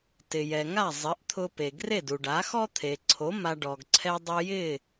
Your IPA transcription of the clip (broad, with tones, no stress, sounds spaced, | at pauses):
t ɪ˩ j ɛ˩ ŋ a˥˩ zˤ ɪ˩˥ ʔ t̪ʰ ʊ˧ p e˩ ɡ r e˥˩ d u˩ ɖ a˩˥ x ɔ˥ t̪ʰ e˩ ǀʰ o˩˥ m a˧ ɖ ɔ˩ ɡ ǀʰ ɛ˧ dˤ ʊ˧ j ɪ˥˩